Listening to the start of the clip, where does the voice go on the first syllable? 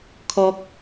high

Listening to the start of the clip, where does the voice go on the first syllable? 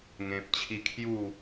low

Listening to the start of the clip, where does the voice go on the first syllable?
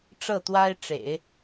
falling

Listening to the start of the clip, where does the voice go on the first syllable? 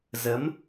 rising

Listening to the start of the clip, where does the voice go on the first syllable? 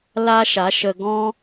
high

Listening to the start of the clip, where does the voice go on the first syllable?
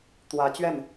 rising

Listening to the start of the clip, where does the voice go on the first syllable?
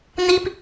high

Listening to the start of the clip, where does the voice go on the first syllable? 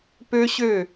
high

